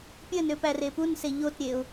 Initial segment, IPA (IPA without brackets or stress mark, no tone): pʲ